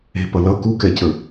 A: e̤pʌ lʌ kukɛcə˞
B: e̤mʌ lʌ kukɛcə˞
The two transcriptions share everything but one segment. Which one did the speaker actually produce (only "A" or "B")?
A